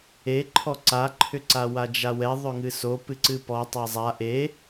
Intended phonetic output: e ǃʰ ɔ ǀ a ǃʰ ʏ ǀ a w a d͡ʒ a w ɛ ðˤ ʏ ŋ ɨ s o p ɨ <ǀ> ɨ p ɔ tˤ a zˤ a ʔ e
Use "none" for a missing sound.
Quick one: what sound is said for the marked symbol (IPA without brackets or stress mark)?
ǀ